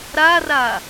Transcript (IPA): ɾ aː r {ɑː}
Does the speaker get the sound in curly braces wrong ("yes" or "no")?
yes